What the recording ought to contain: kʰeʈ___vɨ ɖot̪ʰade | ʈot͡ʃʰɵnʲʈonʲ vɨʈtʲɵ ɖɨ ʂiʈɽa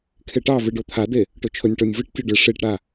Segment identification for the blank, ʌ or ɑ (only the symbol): ɑ